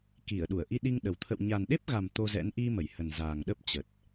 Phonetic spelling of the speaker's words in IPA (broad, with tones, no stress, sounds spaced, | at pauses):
k i˧˩ ə̯ ɗ u˧˩ ə̯ ʔ i˧ ɗ i˧ ŋ ɗ ə˨˩ w t̪ʰ ə̰˧˨ w ɲ a˨˩ n ɗ e˦˥ p̚ ɣ a˨˩ m t̪ o˧ z ɛ̰˧˥ n ʔ i˧ m ə˧˩ j h ə˨˩ n z aː˨˩ ŋ ɗ ə˦˥ p̚ t͡ɕ ə˨˩ t̚